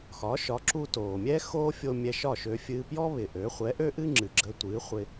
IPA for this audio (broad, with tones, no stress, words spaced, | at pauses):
xɒ˩˥ʃɒ˩˥ ǁu˧toː˩mʲɛ˥ xoː˥fʲo˧ mʲɛ˧ʃɒ˥˩ʃø˧ fʲɨː˧pjɔ˥ βɪ˩ʔø˩˥ χʷɛ˩˥ʔø˥ʔɨ˥ ŋ͡ǁɨ˩ɡ͡ǁə˧tʷɨː˩˥χʷɪ˧